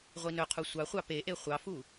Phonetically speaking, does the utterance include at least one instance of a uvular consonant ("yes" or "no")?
yes